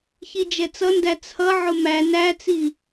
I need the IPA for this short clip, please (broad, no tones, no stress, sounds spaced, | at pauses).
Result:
ç i d͡ʒ ɛ t͡s ʌ n d æ t͡sʰ ʌ ʕ ʊ m æ n æ t͡s i